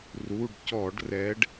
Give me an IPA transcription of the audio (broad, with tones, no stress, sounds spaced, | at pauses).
r u˩˧˩ ɖ c ɔ˧˩˧ ɖ r ɛ˨˦ ɖ